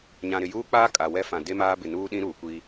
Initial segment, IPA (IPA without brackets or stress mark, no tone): ɲ